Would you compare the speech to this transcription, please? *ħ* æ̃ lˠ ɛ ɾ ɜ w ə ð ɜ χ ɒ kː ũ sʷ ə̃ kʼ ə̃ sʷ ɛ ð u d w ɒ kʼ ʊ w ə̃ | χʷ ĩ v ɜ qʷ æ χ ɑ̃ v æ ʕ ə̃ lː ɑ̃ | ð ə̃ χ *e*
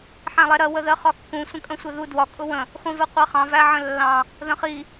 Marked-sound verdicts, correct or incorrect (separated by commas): correct, incorrect